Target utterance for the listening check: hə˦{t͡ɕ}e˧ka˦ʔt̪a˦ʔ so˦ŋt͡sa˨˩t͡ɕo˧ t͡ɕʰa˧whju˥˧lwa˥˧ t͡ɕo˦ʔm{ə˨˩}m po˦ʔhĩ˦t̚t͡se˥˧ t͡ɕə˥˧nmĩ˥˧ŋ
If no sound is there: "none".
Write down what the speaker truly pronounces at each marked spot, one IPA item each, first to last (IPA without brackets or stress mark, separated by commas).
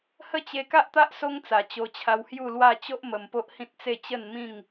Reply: t͡ɕ, ə˨˩